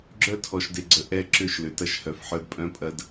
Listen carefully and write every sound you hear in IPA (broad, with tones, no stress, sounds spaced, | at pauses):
ɡ͡ǁ œ˦ tʰ ɔ˨ ʃ d e˨ ɡ͡ǀ ə˨ ʔ ɛ˦˨ ǁ ʏ˦˨ ʃ l ʏ˨ t ɐ˦ ʃ h œ˨ f ħ œ˦ d pʼ œ̃˦ pʼ ɐ˦ d